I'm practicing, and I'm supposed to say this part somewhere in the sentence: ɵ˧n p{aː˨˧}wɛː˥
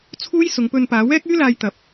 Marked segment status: correct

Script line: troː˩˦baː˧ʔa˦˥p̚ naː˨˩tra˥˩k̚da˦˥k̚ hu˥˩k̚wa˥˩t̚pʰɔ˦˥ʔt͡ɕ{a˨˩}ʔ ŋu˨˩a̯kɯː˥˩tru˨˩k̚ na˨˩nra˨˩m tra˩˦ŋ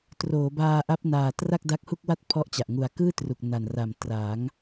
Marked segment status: correct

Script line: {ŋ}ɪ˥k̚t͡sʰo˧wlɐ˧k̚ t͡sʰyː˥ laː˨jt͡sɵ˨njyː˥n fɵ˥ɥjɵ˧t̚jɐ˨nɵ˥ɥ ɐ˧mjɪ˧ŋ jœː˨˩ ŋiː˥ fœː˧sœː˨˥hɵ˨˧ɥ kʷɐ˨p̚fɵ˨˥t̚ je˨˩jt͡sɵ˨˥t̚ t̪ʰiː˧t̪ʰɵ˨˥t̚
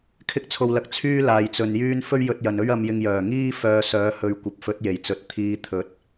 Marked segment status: incorrect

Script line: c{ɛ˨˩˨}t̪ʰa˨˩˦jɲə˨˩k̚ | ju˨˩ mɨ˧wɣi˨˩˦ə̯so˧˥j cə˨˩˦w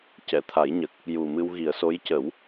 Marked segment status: correct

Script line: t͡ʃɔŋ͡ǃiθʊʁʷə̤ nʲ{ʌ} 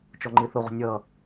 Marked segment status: correct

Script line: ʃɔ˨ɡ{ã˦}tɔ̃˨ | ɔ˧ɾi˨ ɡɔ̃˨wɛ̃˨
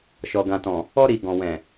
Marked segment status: incorrect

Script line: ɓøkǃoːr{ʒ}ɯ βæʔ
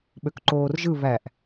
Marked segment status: correct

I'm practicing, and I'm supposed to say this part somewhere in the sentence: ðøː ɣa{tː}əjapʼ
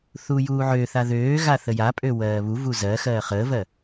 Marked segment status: incorrect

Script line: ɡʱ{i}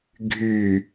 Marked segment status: incorrect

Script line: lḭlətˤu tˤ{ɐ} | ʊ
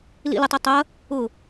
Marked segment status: correct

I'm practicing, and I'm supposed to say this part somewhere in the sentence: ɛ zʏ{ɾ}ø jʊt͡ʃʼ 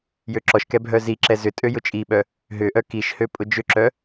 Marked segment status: incorrect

